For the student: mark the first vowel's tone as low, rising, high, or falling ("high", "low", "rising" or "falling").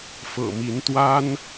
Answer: low